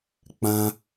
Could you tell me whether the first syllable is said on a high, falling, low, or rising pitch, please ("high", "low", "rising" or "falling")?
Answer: high